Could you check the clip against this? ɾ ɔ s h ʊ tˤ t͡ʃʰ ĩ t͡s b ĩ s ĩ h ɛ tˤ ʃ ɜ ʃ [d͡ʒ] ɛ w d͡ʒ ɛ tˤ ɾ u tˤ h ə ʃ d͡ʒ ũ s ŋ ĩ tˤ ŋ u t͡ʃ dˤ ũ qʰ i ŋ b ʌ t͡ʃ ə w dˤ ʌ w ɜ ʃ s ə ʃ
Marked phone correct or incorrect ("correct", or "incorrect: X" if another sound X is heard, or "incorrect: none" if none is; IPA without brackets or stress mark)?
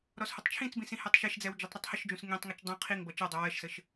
incorrect: d͡z